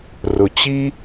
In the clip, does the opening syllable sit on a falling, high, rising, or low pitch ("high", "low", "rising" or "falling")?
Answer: low